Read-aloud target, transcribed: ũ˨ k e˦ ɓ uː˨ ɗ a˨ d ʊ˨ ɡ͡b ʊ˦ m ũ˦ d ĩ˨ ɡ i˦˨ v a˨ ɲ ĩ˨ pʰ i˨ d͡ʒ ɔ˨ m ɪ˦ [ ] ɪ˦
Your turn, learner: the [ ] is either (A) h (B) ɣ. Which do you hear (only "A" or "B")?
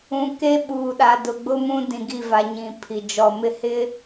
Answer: A